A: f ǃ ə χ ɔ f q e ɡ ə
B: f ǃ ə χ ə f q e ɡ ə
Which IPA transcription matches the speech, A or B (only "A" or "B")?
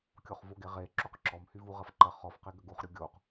A